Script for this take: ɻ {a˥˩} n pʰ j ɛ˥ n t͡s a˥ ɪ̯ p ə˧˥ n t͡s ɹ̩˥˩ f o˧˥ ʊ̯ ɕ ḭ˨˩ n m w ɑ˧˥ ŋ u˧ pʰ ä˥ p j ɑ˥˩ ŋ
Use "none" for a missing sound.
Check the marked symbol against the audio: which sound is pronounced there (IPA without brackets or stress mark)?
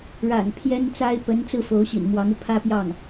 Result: a̰˨˩